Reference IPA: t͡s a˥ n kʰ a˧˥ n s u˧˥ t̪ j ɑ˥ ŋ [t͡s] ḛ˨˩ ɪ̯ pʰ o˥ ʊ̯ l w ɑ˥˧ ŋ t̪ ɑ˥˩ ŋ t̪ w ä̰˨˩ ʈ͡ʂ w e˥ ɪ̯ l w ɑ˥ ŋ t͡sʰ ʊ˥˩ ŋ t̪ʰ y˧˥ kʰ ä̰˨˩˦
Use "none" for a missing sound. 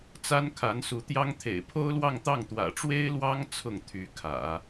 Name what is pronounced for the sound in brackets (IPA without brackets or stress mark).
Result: t̪ʰ